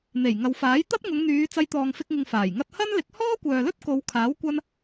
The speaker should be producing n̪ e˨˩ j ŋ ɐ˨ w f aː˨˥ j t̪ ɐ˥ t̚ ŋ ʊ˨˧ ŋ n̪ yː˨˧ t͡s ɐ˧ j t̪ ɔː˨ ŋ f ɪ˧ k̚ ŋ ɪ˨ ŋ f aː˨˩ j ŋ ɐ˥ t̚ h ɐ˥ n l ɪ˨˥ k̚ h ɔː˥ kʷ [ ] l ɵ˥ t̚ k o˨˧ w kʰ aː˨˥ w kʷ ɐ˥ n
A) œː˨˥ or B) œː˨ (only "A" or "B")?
B